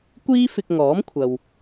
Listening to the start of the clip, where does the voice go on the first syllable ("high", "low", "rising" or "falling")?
high